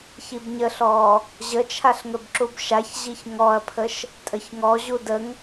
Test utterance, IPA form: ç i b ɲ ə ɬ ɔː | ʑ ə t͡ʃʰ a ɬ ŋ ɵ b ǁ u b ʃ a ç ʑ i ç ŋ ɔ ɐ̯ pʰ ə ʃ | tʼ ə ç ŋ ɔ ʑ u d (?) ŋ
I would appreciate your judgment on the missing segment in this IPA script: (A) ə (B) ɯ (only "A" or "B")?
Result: A